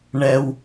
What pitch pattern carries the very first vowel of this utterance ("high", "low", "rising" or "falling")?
high